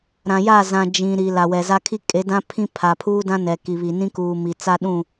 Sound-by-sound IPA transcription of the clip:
ɾ ã˨ j a˦˨ z ã˨ d͡ʒ ĩ˨ ɾ i˨ l a˨ w ɛ˨ z a˦ kʰ i˦ kʼ e˨˦ d ã˦ pʰ ĩ˦ pʰ a˨ pʰ uː˦ d ã˦ n ɛ˨ k i˨ β i˨ n ĩ˦ k uː˨ m i˨ t͡s a˦ ɗ ũ˦˨

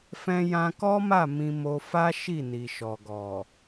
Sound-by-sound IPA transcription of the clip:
f ɛ̃˧ j ã˧ k ɔ˦ m a˦˨ m ĩ˧ m o˧ f a˦ ʃ i˦˨ n i˨ ʃ ɔ˨ ɡ ɔ˨

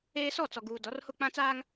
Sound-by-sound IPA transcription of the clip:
eː˦ s ɔ˦˨ t͡s ɔ˨ ɡ uː˨ d ɔ˨˦ r h ʊ˦˨ k͡p ã˦ t͡s aː˦ ŋ

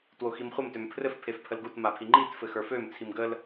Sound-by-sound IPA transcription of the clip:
t w o x i m χʷ ə m t ø m pʰ r ɘ f pʰ e f pʰ ə l ɡ u t m a pʰ i ŋ͡ǃ i t f ɘ x ə˞ f ø m t͡sʰ i m ɡ ə l

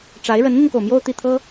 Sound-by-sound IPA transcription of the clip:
ʈ͡ʂ a˧˥ ɪ̯ ɻ ə˧˥ n n̪ i˧ n k o˩ ʊ̯ m j o˥˧ ʊ̯ t̪ i˥˩ t̪ʰ ɤ˥

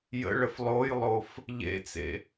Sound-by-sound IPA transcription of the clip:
j ə̰ ɭ ə f lˠ o j lˠ o f | ʎ ḛ t͡s ḛ

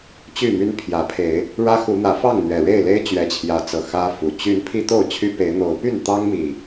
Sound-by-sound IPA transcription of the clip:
t͡ɕ y˥˨ m y˦ n pʰ j ä˨˦ pʰ e˨˦ ɪ̯ | ɻ ä˦ x u˨˦ n̪ ä˨˦ f ɑ˥˨ ŋ n̪ ɥ ɛ˨˩ ɻ e˥˨ ɪ̯ l e˦ ɪ̯ t͡ɕ ɥ ɛ˨˦ t͡ɕʰ j ä˨˦ t͡s ɤ˨˩ x ä˦ f u˨˩ t͡ɕ y˨˦ n pʰ i˦ t̪ o˥˨ ʊ̯ t͡ɕʰ y˦ p e˨˦ ɪ̯ n̪ o˨˦ ʊ̯ p y˥˨ n t̪ ɑ˦ ŋ m i˨˩

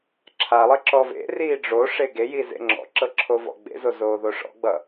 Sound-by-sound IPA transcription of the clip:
ǁʰ a lˠ e ǁ ɔ v ḛ r iː ɖ͡ʐ o ʂ e ɡ e j i z ḛ ŋ͡ǁ ɔ̰ ǁ ɤ ǁʰ o v ɔ̰ ɡ͡b ḛ z o z oː ð o ʂ ɔ̰ ɡ͡b ʌ

